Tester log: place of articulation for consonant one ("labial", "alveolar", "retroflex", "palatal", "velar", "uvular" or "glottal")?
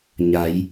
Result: palatal